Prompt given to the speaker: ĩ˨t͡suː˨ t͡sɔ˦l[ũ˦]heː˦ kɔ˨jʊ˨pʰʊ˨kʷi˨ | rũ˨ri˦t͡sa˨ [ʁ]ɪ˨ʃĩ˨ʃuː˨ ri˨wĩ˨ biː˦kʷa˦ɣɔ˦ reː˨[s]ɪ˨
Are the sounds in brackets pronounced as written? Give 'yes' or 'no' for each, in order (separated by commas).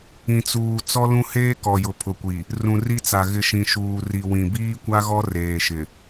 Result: yes, no, no